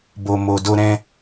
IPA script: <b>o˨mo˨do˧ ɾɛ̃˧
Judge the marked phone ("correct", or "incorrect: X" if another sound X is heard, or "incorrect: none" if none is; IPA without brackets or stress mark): correct